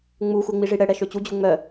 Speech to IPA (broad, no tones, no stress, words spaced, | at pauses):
ŋ͡muxʷeŋ͡miʐi ɽɛɽɛʃø t͡ɕud͡ʑu ŋ͡mœ